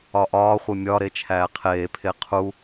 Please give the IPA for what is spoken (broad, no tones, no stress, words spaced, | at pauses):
ɒʔɒːχʷe mʲɒɾe t͡ʃʰæːqʰeːpʰe qʰu